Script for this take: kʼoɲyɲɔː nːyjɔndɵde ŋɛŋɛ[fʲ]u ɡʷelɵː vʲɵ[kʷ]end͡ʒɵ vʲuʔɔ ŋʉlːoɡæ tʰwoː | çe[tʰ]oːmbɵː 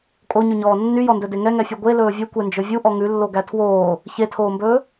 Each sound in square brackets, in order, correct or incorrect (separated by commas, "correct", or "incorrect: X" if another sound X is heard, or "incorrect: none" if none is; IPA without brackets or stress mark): correct, correct, correct